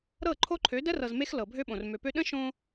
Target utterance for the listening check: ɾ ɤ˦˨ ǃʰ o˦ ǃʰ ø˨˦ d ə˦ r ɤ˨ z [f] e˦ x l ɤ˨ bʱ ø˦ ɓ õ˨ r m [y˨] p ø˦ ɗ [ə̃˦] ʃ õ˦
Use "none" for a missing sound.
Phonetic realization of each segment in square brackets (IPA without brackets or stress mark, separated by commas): m, ø˨, ə̃˦